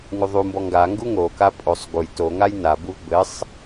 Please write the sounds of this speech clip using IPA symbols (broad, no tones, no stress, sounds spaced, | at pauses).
ŋ u ðˤ u m b ɔ ŋ ɡ a ŋ ɡ u ŋ o k a pʼ o sˤ ɡ u j t o ŋ a j n a b u v b ɘ sˤ